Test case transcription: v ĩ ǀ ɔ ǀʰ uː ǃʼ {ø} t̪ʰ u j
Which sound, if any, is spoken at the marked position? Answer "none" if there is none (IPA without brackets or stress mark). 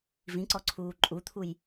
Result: u